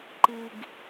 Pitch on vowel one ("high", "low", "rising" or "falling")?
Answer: low